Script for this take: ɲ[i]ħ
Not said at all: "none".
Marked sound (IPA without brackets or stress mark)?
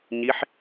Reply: i